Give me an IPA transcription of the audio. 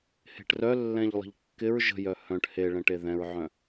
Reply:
h e̤ ʈ r œ lː ɛ̃ ʎ lˠ ə̤ ʎ kː ɪ ɹ ʒ ə̤ j œ h œ̃ ʈ h e ɭ ɛ̃ ʈ e ð ɛ̃ ɹ ʕ œ̃

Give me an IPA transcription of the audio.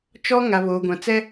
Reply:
t͡ʃ ɔ˦ ŋ a˨ β oː˨ ɡʷ ã˨ t͡s ɛ˦

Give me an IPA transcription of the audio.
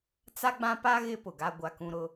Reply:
t͡s a˦ ɡ͡b ã˦ p a˦ ɣ ɪ˦ p ʊ˨ ɡ a˦ ɡʷ a˦ k ũ˦ ɾ ʊ˦

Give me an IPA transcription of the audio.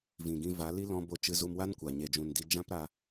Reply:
v ĩ˨ ɡ ĩ˧ v a˨˦ l i˦ l ɔ̃˧ b o˧ t͡ʃ ɨ˧ z u˧ m w a˦ n kʷ a˨ ɲ e˨ d͡ʒ ũ˨ n d i˧ d͡ʒ ã˦ p ɾ a˧

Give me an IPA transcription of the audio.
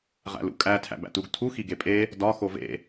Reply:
ʁ æ̰ l ṵ kʼ æ tʰ æ̰ b æ̰ t u ɡ tʰ u x i ɡ e pʼ e | d ɒ x o v ḛ

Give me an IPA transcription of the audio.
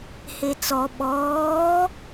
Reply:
h e t͡s ɔ ɓ ɔː

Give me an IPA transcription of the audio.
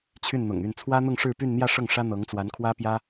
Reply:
t͡ɕʰ y˥˩ n n̪ ʊ̰˨˩ ŋ y˥˩ n t͡sʰ w ä˥ n̪ ʊ˥˧ ŋ ʂ ɻ̩˥˧ p y˥˧ n n̪ j ä˥˧ ʂ ɤ˥˩ ŋ ʂ ä˥ n̪ ɤ˧˥ ŋ t͡s w a˧˥ n kʰ w ä˥ p j ä˥

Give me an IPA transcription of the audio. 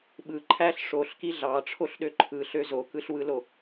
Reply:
ɓ ɯ ǃʰ æ ɬ ʂ o ɬ k i ɮ ɑ ʈ͡ʂʰ o ɬ ɗ ø ǃʰ ɯ ɬ ø z o k ɯ ɬ w ɯ l o

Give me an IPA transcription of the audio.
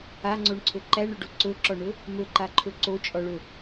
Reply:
a ŋ͡ǀ o ɳ ǀʰ ɵ ǃ æ ɳ ɵ ɖ o ǀ ɵ ǁ ɔ ɳ ɵ | m ɵ ǃ a ǃʰ ɵ ǀ o t͡ʃʼ ɔ ɭ ɵ

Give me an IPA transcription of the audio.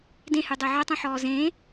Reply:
d ẽ h y dˤ e ʕ œ tˤ ũ ħ ɔː z ẽː

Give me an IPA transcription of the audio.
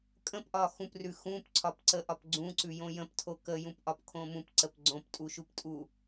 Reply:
kʼ ə̃ p ʔ ɒ x ũ p r ʉ x ũ p ǀʰ ɒ p ǀ ə ʔ ɒ p ɡ͡ǀ ũ ǀ ʉ j õ j ə̃ p tʰ o k ə j ũ p ʔ ɒ p kʰ õ m ũ p ǀ ə p ɡ͡ǀ õ p tʼ u ʃ u p tʼ u

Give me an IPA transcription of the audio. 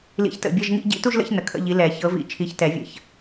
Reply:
l ḭ˨˦ ç t ə̰˨ bʲ ɐ˧˥˧ ʒ ŋ ḭ˥˧ ɟ ḭ˧˥˧ t u˥˧ ʒ l ə̰˧˥˧ ç n ə˨ kʰ ə̰˧˥˧ ʎ i˨˦ l ɛ˨˩˦ ç ɤ˨˦ v ḭ˨˦ t͡ʃʰ i˨˦ ç t ɛ˨˩˦ vʲ ə̰˨ ç

